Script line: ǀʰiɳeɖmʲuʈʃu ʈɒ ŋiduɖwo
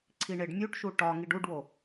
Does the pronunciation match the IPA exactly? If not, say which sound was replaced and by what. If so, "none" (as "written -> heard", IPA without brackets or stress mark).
d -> ɖ